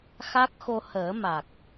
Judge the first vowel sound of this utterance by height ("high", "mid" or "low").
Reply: low